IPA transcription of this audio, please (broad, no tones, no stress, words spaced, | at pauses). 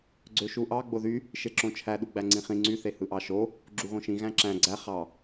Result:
ɡ͡ǀøʃuʔɑ ɡ͡boðy | ʃeǁõt͡ʃʰæ ɗuɡ͡bæŋ͡ǀĩχĩ ŋ͡ǀy θehɯʔɑʃo | ɡ͡ǁuɣõʃĩ ɣæ̃ǁæ̃ ɡ͡ǀæ χɑ